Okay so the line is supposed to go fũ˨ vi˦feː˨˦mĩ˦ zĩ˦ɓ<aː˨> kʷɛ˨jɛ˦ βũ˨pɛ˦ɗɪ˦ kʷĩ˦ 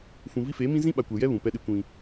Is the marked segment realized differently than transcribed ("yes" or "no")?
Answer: yes